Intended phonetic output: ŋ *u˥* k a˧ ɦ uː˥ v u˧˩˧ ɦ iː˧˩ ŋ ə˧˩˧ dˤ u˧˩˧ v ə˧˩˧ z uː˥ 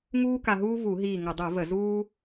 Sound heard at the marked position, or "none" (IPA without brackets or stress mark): uː˥